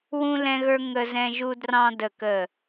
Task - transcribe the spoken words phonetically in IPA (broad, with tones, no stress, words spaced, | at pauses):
wũ˧ lɛ̃˧ɣə˞˧ ŋə˧zɛ̃˧ʒu˧drɑ̃˧ də˨˩kə˨˩